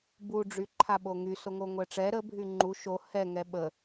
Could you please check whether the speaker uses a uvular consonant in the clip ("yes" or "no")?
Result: no